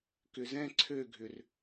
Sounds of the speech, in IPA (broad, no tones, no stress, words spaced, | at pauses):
kʏzɛ̃ ǀʰøɡʱʏr